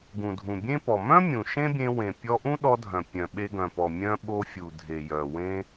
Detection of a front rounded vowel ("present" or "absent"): present